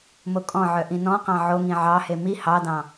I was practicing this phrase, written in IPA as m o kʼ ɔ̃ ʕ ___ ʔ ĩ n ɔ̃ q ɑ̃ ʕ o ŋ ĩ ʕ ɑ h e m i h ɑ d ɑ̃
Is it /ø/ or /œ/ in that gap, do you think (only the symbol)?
œ